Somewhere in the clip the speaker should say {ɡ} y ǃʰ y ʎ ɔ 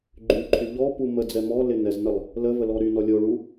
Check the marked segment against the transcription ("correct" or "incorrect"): incorrect